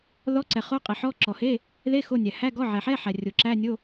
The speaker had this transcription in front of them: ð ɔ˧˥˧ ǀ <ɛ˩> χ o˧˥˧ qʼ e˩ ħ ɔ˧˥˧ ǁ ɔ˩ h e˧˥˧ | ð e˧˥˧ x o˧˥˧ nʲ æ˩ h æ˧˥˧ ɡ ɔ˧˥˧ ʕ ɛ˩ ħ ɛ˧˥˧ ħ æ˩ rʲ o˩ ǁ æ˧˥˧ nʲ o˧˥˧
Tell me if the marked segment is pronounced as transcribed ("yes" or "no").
yes